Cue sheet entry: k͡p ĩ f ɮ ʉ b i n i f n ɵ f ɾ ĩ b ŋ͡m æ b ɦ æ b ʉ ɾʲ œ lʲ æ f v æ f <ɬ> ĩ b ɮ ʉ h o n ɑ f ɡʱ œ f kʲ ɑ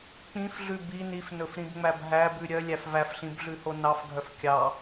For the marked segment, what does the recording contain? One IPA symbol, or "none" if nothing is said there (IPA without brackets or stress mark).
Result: ɬ